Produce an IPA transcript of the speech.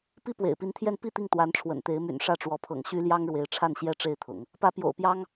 p i˥ p w ḛ˨˩ ɪ̯ p i˧˥ n t̪ʰ j ɛ˥˧ n p i˥˧ t̪ i˥˩ ŋ t̪ w a˧˥ n ʈ͡ʂʰ w ə̰˨˩ n t̪ e˧˥ ɪ̯ m y̰˨˩ n ʂ ä˥˩ ʈ͡ʂ w ɔ˧˥ pʰ ɤ̰˨˩ ŋ ɕ y˥ l j ɑ˥ ŋ ɻ w e˧˥ ɪ̯ ʈ͡ʂʰ a˥˩ n ɕ j ɛ˥ ʈ͡ʂ e˥˩ ɪ̯ t̪ʰ ʊ̰˨˩˦ ŋ | p ä˧˥ p j o̰˨˩ ʊ̯ p j ɑ˥ ŋ

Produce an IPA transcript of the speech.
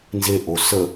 n z e ʔ o s ə

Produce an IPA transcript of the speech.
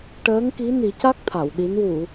ʈ əː˧˥ ŋ k i˧˥ n i˨˩˦ c a˦˥ k̚ t̪ʰ a˨˩˨ w ɗ i˧˥ n w u˨˩˨

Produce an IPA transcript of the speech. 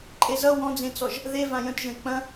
ǃʼ e z ʌ w ɔ̃ d͡z ẽ t͡s ɔ ʒ | ð e v ã j ə̃ t ʒ ə̃ e̯ k͡p ɐ̃

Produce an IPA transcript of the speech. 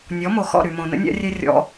nʲ ɔ˨˦ m o˨ x ɔ̰˦˨ ɾ y˨ m õ˨ n ə̰˦ nʲ a̰˦ rʲ e˦ rʲ ɔ̰˧

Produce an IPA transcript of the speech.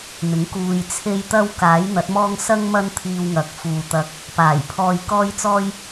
n̪ ɪ˨˥ ŋ k uː˧ j t͡sʰ e˥ j t̪ ɐ˥ w k aː˨˥ j n̪ ɐ˨˥ t̚ m ɔː˥ ŋ s ɐ˥ ŋ m ɐ˥ n t̪ʰ iː˧ w ŋ ɐ˨ k̚ f uː˨ t̪ ɐ˧ k̚ | p aː˨˩ j pʰ ɔː˧ j k ɔː˥ j t͡s ɔː˥ j

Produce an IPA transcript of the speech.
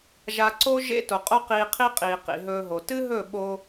ʒ a˧ ǀ o˦ ʒ ḛ˦ t o˨ qʼ o˦ q iː˧ qʰ i˦ qʼ iː˨ q ḭ˨ ɦ ɵː˧ ɦ o˨ t ɨ˦ ɦ ɵ˦˨ ɓ o˧

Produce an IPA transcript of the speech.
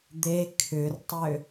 d̪ e kʰ ʏ r tˤ ʏ

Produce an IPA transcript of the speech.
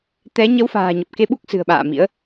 t̪ ɛ˨˦ ɲ ə˨˦ w f a̤ː˨˩ ɲ ə˨˩ p̚ k e˧ ɓ u˦˥ k̚ s ɨ̤˨˩ ə̯ ɓ a̰ː˧˨ m ḭ˧˥ ə̯

